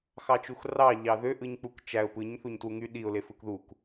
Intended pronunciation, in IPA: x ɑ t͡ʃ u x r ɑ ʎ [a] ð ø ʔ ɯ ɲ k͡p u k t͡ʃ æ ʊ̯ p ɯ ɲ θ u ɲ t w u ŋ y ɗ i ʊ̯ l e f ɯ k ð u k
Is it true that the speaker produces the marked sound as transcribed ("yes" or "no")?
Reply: no